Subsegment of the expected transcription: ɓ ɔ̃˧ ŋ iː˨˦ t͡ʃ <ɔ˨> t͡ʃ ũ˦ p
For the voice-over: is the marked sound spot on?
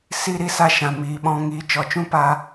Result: yes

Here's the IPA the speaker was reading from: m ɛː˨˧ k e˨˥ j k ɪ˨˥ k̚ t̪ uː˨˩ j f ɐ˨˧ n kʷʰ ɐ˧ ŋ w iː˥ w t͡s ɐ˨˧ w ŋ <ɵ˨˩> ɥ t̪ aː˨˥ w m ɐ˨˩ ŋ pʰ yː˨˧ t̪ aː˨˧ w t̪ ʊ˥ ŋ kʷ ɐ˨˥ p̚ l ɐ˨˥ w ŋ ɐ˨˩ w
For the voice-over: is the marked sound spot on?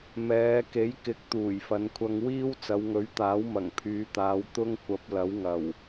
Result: no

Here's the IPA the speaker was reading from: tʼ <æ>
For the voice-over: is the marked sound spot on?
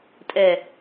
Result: no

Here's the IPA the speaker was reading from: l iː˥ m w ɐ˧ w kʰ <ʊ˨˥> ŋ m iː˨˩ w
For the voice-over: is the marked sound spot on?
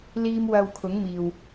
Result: yes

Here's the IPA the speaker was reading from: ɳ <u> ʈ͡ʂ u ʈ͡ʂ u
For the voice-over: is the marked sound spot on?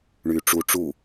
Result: no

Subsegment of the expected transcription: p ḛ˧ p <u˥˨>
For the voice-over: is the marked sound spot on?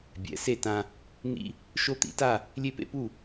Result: yes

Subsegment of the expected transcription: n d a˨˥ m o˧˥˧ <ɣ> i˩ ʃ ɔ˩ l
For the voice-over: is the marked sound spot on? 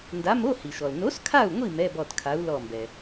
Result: no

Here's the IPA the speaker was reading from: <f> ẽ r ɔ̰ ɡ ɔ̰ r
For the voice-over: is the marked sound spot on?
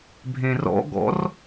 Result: no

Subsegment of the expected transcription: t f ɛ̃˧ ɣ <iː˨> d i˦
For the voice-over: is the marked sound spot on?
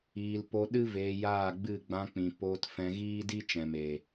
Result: no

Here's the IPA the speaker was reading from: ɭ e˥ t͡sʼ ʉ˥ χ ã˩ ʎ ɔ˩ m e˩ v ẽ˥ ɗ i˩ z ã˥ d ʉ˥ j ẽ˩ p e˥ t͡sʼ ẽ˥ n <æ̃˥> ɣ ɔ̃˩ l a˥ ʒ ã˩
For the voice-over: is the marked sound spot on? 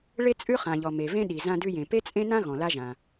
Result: no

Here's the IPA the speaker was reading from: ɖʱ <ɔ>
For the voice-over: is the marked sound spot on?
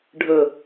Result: no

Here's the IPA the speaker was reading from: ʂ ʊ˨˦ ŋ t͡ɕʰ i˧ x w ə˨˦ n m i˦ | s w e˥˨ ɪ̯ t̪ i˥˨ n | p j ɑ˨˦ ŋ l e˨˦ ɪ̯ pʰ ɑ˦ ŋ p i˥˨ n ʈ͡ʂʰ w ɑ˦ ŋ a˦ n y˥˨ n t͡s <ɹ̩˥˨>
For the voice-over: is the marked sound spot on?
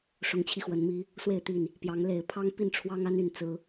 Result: no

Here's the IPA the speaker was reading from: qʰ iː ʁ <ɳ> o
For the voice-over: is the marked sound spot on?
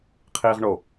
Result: yes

